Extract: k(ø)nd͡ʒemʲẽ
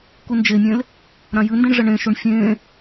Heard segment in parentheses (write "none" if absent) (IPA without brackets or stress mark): u